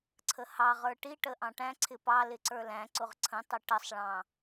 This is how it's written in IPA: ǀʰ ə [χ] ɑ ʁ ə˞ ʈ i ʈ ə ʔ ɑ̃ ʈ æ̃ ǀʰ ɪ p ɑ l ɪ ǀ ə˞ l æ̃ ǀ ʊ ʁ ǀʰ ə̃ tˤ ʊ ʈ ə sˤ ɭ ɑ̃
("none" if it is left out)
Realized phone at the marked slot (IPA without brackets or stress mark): h